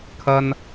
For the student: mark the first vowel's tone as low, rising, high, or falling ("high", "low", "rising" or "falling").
high